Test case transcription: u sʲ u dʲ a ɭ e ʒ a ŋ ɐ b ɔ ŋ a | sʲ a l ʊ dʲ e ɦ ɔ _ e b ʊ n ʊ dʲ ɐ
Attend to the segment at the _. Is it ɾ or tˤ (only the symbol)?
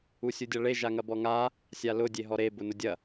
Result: ɾ